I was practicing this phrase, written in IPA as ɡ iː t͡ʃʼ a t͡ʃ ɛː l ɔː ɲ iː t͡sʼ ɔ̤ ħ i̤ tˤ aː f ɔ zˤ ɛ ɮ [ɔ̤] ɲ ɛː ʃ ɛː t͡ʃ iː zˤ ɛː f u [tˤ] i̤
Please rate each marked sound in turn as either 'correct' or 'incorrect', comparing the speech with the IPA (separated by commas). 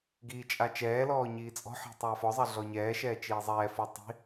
incorrect, correct